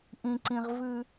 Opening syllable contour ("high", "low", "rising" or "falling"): high